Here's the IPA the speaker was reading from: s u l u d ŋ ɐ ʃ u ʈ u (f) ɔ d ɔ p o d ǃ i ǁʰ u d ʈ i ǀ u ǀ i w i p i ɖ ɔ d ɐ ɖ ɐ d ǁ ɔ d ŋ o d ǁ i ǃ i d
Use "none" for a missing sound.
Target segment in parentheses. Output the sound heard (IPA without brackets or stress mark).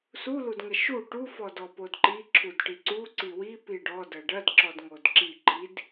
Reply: f